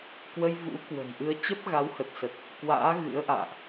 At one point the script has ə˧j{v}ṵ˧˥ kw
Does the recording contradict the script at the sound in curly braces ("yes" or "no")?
no